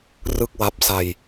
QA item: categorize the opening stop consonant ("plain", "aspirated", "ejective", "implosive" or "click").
plain